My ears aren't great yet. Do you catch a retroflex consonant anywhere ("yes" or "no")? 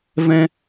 no